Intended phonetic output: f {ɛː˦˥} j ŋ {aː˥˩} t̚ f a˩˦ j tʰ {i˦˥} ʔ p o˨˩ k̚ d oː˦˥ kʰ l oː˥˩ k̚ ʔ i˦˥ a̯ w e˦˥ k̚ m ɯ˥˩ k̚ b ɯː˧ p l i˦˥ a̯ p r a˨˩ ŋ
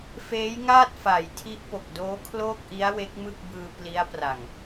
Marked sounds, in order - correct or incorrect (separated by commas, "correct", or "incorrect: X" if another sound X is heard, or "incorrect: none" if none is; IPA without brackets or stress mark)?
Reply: incorrect: eː˦˥, correct, correct